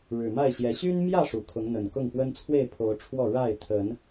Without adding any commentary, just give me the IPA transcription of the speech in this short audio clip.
ɻ ɻ̩˨˩ m a˥˨ ɪ̯ ɕ j ɛ˨˦ ɕ y˦ n m j ä˥˨ ʂ u˨˩ kʰ ʊ˨˦ ŋ n̪ ə˨˩ n k ʊ˥˨ ŋ p w ə˦ n t͡sʰ w e˥˨ ɪ̯ pʰ o˨˦ ʊ̯ ʈ͡ʂʰ w ɔ˥˨ ɻ a˥˨ ɪ̯ t̪ʰ ə˨˦ n

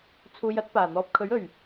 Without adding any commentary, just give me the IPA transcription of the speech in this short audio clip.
t͡sʰ uː˧ j ɐ˥ t̚ p aː˨˩ n̪ ɔː˧ p̚ kʰ ɵ˨˥ ɥ ɵ˨˩ ɥ

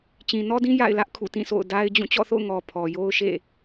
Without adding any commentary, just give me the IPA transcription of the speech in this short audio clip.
t͡ɕ ĩ˨ n ɔ˦ d ĩ˦ j a̰˦˨ ɪ̯ l ä˦ ʔ kʰ ṵ˦˨ t ĩ˦˨ sʰ o̰˦˨ ʊ̯ d a˦ ɪ̯ d͡ʑ ũ˦˨ t͡ɕ ɔ̰˦˨ θ o̰˦˨ ʊ̯ ŋ ɔ˨ pʰ ɔ˨ j o˦ ʊ̯ ʃ ḛ˦˨

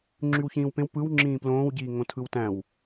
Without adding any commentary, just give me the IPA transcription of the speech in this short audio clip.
ŋ͡ǁ y w ç ĩː w p ẽ w p ɯ w ŋ͡ǁ ĩː p l õː w ɟ iː ŋ õ tʰ ɯ w t æ̃ w

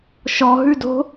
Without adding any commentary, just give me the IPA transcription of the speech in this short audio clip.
ʃ ɔ ɦ ʉ d o̤

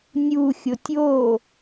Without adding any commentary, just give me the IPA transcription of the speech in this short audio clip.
nʲ u xʲ o tʲ o

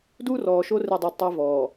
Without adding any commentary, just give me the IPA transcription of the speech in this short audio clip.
d uː˦ r ɔː˨ ʃ o˦ r e˦˨ dˤ a˦ d tˤ ɛ˦ v ɔː˨

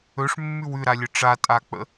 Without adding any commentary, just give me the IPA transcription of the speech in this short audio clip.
ɵ ʂ mː ʉ w ʉ ɾ a lʲ ə ʈ͡ʂ a tʼ a k͡p ə̰

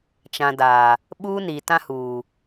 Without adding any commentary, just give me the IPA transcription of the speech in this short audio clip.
t͡ʃ ã˨ d aː˨ | ɓ uː˦ n i˨ t ã˦ h uː˨

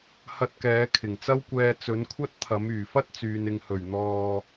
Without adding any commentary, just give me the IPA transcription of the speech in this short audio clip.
h ɐ˧ t̚ k ɛː˨˧ kʰ ɪ˨˩ ŋ t͡s ɐ˥ w kʷ ɛː˧ t͡s ɵ˨˥ n kʷʰ ɐ˥ t̚ t̪ʰ ɐ˨˥ m yː˨˩ f ɐ˥ t̚ t͡s yː˨ n ɪ˨ ŋ h ɵ˨˩ ɥ n̪ ɔː˨

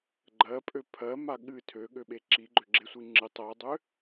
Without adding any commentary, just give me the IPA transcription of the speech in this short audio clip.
ɡ͡ǃ ɜ pʼ ø pʰ ɜ m a ɠ ɨ tʰ ø ɠ ø ɓ e ǁ i ɡ͡ǃ ø ɡ͡ǁ e sʷ i ŋ͡ǁ ɨ tˤ ɜ dˤ ø

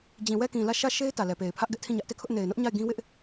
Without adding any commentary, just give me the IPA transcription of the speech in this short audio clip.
d͡ʑ ĩ˨ w ɛ˦˨ k ĩ˨ l ä˦˨ ʃ ä˦˨ ʃ e˦ ɪ̯ t ä˨ l ɛ˨ p e˨ ɪ̯ pʰ ä˦ ʔ ɡ ɛ˦ ʔ tʰ ĩ˦˨ ɲ ä˦ ʔ t e˦˨ kʰ ʊ˦ ʔ n e˨ ɪ̯ n ʊ˦ ʔ ɲ a˦˨ ɪ̯ ɡ ĩ˦ w ɪ˦ ʔ

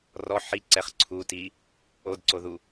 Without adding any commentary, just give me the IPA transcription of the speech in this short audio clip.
r ɔ ħ i ǀ ɛ χ ǀʰ u t i | o d ǀ o ð u

